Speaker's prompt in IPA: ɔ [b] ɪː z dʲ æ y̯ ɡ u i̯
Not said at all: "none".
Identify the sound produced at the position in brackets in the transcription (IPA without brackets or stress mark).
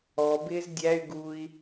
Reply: b